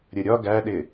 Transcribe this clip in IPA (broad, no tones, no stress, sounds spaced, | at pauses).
ɾʲ ə ɾʲ ɒ ɡ æ ɗ ɪ